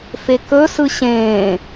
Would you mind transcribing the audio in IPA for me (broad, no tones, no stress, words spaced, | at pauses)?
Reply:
fekɵ sɯɕẽː